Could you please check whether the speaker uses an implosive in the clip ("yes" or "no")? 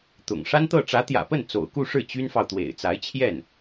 no